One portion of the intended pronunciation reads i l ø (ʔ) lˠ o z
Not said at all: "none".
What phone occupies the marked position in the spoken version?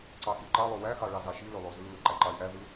none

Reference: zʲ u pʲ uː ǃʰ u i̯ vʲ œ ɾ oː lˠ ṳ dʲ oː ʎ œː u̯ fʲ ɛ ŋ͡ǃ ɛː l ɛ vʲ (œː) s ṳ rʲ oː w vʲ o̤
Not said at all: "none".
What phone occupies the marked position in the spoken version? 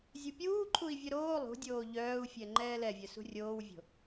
œ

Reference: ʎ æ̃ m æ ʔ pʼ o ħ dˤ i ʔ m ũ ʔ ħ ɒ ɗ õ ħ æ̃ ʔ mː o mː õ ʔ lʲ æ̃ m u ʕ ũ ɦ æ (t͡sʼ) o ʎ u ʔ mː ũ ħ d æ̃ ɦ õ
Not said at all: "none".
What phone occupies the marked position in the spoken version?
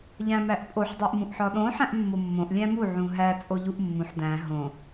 t͡sʼ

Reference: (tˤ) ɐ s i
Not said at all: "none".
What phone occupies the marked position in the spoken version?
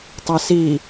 tˤ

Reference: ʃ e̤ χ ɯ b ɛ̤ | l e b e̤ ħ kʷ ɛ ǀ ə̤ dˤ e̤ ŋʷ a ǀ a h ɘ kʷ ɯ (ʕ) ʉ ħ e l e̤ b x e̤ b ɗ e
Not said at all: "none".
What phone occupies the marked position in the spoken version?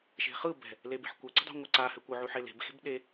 ʕ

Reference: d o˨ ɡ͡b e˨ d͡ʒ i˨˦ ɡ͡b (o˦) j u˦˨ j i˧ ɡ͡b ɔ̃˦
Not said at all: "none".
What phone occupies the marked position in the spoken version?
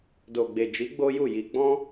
o˦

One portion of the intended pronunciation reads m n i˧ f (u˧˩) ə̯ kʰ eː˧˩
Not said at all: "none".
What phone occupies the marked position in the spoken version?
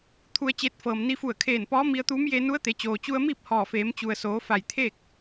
u˧˩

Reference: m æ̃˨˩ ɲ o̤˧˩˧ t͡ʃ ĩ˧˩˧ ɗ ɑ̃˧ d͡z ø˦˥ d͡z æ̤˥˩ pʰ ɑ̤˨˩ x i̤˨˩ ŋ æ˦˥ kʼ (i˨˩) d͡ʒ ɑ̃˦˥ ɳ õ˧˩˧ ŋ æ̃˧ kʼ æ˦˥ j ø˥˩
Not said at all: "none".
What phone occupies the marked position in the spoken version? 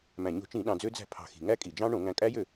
i˨˩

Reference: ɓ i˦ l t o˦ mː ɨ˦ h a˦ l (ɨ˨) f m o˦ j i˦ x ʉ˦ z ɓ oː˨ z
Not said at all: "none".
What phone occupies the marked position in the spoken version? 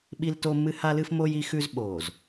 ɨ˦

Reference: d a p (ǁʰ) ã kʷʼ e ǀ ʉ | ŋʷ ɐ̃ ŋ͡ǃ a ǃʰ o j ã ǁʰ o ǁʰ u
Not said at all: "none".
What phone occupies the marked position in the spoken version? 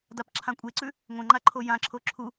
ǁʰ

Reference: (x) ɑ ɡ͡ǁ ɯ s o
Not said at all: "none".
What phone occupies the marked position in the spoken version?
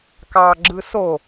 k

